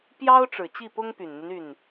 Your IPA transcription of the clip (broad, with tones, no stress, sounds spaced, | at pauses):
p j ɑ˥ ʊ̯ ʈ͡ʂ ɻ̩˨˩ t͡ɕ i˥˩ p ʊ˥ ŋ p y˨˩ n n̪ y˦ n y˥˩ n